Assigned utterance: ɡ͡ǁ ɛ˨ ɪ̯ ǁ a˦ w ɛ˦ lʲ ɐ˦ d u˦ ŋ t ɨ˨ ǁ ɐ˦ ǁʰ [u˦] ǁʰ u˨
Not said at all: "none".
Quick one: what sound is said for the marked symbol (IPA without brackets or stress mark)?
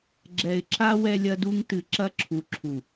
u˨